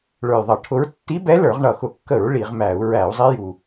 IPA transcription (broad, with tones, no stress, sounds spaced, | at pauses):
ɭ ə˞˨˩ j ðˤ ʌ˧˩˧ ʈʰ ʊ˧˥ ɹ tː i˧˥ b ɛ˧˥ l ə˞˧˩˧ ʁ ɳ ʌ˨˩ x ʊ˧˩˧ kː ə˧˩˧ ɹ ɭ i˧˩˧ ʁ m æ˧˩˧ u̯ ɹ æ˧˩˧ u̯ zˤ i˧˥ j u˨˩